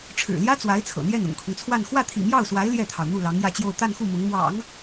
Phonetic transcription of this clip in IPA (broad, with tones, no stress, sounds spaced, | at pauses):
ʈ͡ʂʰ ɻ̩˨˩ l j ä˥ t͡s w a˧˥ ɪ̯ t͡sʰ ɤ̰˨˩ n̪ j ɛ˥˩ n ʊ̰˨˩ ŋ kʰ ʊ˦ ŋ t͡sʰ w a˥˧ n x w ä˥˩ t̪ʰ ḭ˨˩ m j ɑ˥˩ ʊ̯ s w a˧˥ ɪ̯ l j ɛ˥˩ t̪ʰ ɑ˩ ʊ̯ n̪ u˥˩ l ɑ˧˥ ŋ j ä˥˧ t͡ɕ j o˥˧ ʊ̯ t̪ a˥˧ n x u˥˩ m ʊ˧˥ ŋ m w ɑ̰˨˩˦ ŋ